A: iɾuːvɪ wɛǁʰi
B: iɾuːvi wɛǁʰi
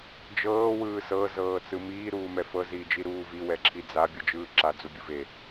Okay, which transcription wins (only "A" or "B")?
B